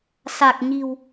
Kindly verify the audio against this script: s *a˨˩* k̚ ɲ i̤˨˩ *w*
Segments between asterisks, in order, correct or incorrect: correct, correct

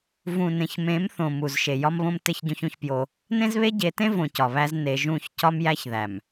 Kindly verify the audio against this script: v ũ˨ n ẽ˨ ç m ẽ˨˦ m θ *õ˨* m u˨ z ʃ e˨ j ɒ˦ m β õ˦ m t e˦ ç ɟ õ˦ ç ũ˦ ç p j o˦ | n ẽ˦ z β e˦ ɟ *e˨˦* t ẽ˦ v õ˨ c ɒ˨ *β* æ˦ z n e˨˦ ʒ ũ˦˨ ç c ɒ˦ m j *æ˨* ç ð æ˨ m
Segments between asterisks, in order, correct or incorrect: correct, correct, correct, incorrect

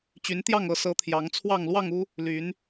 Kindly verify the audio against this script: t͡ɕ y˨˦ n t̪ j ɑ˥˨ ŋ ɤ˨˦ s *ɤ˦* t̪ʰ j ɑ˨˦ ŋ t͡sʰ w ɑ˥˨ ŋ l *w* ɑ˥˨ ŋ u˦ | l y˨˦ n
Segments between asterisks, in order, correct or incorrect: incorrect, correct

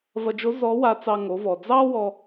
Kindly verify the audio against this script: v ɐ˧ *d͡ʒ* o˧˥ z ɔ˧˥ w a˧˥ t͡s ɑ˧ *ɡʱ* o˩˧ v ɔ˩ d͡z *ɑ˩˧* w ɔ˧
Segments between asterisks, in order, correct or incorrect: correct, incorrect, incorrect

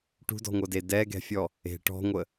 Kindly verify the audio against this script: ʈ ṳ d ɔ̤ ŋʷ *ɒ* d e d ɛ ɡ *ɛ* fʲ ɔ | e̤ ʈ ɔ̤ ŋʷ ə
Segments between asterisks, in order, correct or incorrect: incorrect, incorrect

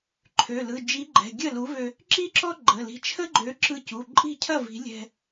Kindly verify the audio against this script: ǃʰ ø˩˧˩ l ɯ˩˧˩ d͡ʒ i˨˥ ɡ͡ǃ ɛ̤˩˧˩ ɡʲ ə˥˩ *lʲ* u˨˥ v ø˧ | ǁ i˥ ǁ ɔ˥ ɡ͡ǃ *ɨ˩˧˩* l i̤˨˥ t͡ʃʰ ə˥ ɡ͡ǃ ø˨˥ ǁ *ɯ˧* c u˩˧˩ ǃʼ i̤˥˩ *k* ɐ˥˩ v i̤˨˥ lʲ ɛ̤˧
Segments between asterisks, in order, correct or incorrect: incorrect, incorrect, correct, incorrect

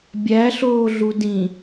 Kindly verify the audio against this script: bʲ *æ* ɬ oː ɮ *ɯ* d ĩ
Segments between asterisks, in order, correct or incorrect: correct, incorrect

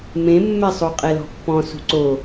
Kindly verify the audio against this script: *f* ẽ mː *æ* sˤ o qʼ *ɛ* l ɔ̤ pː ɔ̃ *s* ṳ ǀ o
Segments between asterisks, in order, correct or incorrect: incorrect, incorrect, correct, correct

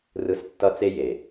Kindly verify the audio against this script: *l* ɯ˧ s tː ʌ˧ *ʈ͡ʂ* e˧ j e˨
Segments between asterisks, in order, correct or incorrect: incorrect, incorrect

